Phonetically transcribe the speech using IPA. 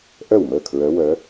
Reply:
ʔœ˥˩wməː˥˩kʰɹœ˧˥wœ˧˥

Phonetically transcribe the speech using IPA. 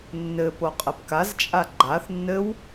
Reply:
nːɘ poqʼɘpkazt͡ʃʼa ɡ͡ǃaθ nːɘw

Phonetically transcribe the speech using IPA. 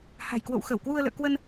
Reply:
ha̤˨˩jkwo̰˧˨w xə˧˩wkwu˧ə̯lə̰ː˧˨ kwə˧n

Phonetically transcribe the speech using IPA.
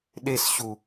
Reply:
ɗesɕu

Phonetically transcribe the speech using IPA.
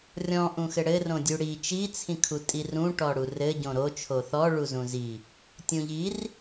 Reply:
rʲɔ̃ ʔũxɘɽɘ rõdʲuɽi t͡ʃi t͡sʰĩkʰutʼirũ ʈɔɽurɘ ɟõɾo t͡ʃʰoθɔ ɭuzũzi | tʲũʎir

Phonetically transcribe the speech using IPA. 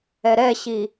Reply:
ɛɾɛɕi

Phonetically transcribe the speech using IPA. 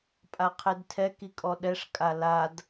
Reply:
pʼaqʰedtʰɛ kikʼɔɗɛʂ kʼalad

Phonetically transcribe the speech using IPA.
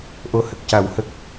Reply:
ʔo˨˩ hə˨˩k̚ca˨˩˦whə˨˩k̚

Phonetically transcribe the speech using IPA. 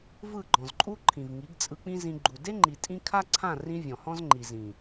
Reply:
vɯ˦˨ɡ͡ǃɔ̃˨zǃʼu˦ ǃʰĩ˨vŋi˨˦ɡ t͡sʼɯ˧k͡pĩ˦zĩ˧ ɡ͡ǃu˨ de˦ŋ͡ǃi˨ tʼĩ˦ kʰa˦ǀʰã˦˨rĩ˧ vʲɔ̃˨hɔ̃˦zŋ͡ǃi˨zĩ˨

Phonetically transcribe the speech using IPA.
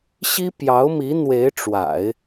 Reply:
ɕi˥pjɑ˧˥ʊ̯mi˧˥ n̪we˧˥ɪ̯ʈ͡ʂwa̰˨˩˦ɪ̯

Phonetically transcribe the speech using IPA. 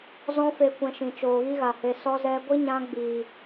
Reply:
zɔ̃˦fe˧ kʷɛ̃˧ʃĩ˨ t͡ʃoː˨ɣi˦ɣa˨he˧ sɔ˧zɛ˧ɡʷi˦ ɲã˦ɡ͡biː˨

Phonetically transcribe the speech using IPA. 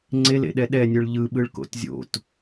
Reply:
ŋ͡ǀelḛɗɛ ɗɛnʲɯɭ ʎɯɓɯɭko̰t zʲo̰t

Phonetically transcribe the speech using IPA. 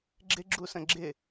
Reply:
ɡ͡ǁɪ ɡ͡ǁusə̃ɡ͡ǁɪ

